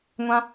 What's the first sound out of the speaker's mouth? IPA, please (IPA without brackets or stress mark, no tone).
ŋʷ